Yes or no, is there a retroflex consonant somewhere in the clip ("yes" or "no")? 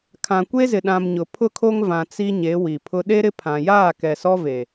no